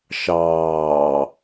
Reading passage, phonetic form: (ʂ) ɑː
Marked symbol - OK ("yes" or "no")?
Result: no